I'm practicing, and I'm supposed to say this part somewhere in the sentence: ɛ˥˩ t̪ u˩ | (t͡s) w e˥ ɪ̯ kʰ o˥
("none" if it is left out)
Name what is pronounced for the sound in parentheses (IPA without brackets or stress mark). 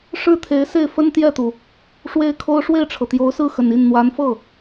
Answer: ʂ